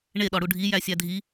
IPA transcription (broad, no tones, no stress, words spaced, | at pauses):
ɳeɗɒ ɽuɖʱijæ sʲædʱi